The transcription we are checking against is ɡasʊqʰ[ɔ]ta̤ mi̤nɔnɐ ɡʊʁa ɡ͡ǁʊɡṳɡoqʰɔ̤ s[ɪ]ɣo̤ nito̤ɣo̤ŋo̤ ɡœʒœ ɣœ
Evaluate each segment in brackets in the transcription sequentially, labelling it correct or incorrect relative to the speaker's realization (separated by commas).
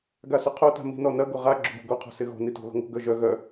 incorrect, correct